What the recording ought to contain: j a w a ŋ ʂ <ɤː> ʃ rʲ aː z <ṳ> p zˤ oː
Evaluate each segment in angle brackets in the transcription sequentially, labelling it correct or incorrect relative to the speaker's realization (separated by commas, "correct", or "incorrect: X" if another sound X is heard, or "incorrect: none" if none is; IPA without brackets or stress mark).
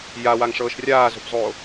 correct, correct